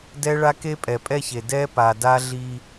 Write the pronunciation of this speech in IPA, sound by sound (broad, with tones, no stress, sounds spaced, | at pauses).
d ɛ˦ ɭ a˦ k e˦ pʼ ɛ˨ pʼ ɛ˦ ç e˨ d ɛ˦ p a˨ d a˦ ɮ i˦